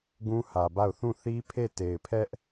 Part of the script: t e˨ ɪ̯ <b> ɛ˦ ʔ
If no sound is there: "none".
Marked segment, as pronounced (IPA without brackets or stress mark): pʰ